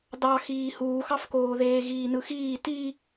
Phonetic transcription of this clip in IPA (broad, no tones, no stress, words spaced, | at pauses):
dɑxiː huːxɑfkoːðeː ɣiːnɯxiː ti